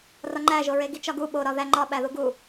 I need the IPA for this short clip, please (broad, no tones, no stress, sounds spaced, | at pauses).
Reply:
r ɒ ŋ͡ǃ æ ʒ o ɹ e ɡ i t͡ʃ ɒ ɡ u ɓ o ɾ ɒ ð æ ŋ͡ǃ ɒ ɓ æ ð u ɡ u